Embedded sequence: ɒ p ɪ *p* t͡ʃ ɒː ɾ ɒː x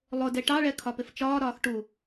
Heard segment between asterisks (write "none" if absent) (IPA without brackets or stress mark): f